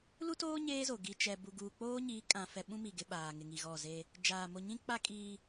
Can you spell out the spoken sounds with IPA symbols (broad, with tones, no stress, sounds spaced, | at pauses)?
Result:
l u˦ t oː˦ ɲ eː˦ z o˨ ɡ i˨ t͡ʃ ɛ˨ b u˨ ɡ uː˨ k͡p oː˦ ɲ iː˨˦ kʼ ã˨ f ɛ˨ ɓ ũ˦ m i˨ ɡ ɪ˦ ɓ aː˨ ŋ ɪ˨ ŋ i˨ ɣ ɔ˦˨ z e˦ | d͡ʒ aː˨ m o˨ ɲ ĩ˦ k͡p a˦ kʼ iː˦